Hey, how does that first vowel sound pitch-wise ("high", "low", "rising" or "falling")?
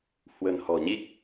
low